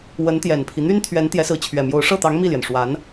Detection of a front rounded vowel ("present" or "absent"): present